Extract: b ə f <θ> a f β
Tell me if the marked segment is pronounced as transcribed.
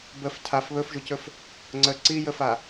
no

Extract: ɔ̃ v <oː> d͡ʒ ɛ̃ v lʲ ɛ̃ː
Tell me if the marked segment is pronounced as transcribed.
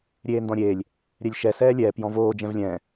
yes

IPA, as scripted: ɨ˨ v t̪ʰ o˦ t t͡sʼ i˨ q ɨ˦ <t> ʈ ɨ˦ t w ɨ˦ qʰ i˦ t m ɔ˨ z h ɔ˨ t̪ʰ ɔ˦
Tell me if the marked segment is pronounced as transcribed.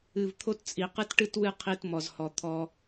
yes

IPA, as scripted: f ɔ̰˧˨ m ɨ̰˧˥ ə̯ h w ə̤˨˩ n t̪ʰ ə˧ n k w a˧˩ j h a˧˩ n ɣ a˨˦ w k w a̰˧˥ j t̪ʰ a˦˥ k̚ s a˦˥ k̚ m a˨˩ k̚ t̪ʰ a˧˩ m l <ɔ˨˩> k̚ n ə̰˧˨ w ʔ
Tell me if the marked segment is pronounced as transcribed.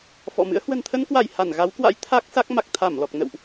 yes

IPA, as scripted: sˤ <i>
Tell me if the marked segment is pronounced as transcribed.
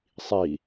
yes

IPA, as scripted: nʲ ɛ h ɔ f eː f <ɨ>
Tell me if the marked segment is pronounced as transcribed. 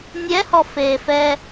no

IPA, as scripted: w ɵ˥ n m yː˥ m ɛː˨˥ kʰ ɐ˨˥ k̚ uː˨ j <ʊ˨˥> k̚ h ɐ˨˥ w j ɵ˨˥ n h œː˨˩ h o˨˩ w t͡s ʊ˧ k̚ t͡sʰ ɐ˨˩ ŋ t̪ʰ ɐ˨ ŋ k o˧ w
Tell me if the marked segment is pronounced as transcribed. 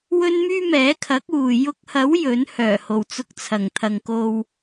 no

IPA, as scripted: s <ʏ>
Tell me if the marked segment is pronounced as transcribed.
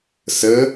no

